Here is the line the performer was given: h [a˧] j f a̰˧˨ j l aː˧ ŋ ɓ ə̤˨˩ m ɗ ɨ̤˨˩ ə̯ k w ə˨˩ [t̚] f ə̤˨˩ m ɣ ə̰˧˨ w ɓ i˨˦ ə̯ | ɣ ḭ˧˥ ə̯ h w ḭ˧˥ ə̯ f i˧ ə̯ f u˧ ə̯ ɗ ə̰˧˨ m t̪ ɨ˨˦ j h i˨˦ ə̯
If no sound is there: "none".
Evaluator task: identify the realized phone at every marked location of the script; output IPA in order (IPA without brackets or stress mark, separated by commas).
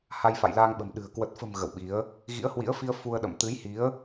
a˧, t̚